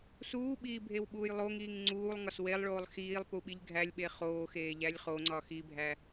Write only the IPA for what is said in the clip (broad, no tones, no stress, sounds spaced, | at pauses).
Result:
s uː ɓ iː bʱ e w ɓ uː j lˠ o ŋ iː ŋ ŋ͡ǀ uː lˠ ŋ ɒ s w e lˠ ɭ oː lˠ x iː lˠ p u ɓ i ʎ ɡʱ æ lʲ ɓ e χ oː x eː ʎ æ lʲ χ o ŋ͡ǀ ɒ x i bʱ æ